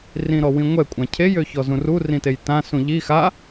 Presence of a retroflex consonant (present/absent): absent